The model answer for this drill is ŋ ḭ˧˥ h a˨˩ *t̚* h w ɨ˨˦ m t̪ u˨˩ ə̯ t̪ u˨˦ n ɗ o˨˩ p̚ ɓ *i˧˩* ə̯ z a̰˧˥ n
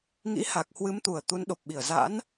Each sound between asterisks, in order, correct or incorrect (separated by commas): incorrect, correct